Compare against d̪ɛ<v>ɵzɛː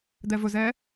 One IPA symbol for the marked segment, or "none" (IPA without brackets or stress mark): v